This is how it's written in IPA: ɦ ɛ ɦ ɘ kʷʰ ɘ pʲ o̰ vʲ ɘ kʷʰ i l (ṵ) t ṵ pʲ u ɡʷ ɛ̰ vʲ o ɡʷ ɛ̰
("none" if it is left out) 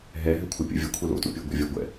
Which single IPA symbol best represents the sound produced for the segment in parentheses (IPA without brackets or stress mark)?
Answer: o̰